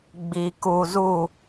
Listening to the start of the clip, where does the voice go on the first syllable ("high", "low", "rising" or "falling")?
low